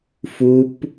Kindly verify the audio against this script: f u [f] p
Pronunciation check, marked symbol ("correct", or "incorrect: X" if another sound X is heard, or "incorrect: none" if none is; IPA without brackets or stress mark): incorrect: none